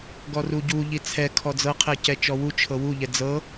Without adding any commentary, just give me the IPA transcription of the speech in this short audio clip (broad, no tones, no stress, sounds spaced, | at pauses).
ɡ ɔ r u ɟ u ʎ i t͡sʰ ɛ kʰ ɔ d͡z ɤ qʰ ɛ c ɛ t͡ʃ ɔ w u t͡ʃʰ ɤ w u ʎ ɛ d͡z ɤ